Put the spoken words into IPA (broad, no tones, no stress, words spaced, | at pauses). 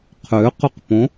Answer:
qʰʏːqʏqpõ